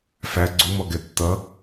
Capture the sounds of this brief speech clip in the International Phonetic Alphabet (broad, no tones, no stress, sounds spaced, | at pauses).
f æ ɡ͡ǀ u m ɔ ɡ ɛ tː ʌ